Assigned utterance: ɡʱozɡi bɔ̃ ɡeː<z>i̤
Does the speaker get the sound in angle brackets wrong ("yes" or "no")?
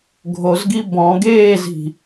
no